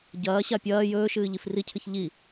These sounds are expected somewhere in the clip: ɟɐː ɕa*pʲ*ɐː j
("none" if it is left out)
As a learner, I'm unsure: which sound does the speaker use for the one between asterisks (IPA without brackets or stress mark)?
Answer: pʲ